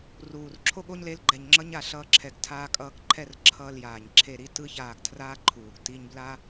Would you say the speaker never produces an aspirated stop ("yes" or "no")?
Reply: no